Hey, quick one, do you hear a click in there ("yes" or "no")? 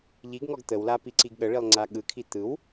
yes